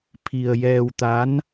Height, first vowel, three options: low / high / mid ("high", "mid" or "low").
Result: high